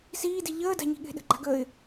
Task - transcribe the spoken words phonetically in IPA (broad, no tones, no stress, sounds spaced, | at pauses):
s iː d i ʎ əː d a̤ ɲ i̤ ɠ e̤ ɗ ə̤ ɡ͡ǃ a̤ ɡ əː ɪ̯